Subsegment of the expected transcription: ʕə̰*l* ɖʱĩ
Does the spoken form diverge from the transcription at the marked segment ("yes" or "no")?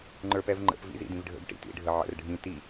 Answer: yes